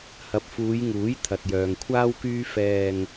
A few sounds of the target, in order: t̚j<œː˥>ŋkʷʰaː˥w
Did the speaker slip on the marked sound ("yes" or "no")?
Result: yes